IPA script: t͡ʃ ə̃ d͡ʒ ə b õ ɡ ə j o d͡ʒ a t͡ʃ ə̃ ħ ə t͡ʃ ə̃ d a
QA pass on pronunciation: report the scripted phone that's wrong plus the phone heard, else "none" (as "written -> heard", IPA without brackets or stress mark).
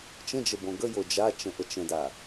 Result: ħ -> ʔ